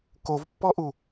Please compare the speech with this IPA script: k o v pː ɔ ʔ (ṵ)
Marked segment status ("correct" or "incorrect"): incorrect